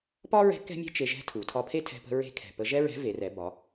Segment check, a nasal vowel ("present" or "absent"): absent